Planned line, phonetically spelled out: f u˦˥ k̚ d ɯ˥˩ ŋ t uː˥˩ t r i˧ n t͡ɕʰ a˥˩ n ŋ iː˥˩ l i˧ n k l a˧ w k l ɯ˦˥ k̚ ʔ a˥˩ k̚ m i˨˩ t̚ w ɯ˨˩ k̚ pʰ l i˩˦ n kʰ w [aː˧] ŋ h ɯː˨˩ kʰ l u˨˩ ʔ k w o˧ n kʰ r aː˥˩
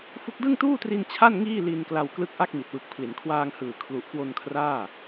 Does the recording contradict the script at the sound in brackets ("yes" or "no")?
no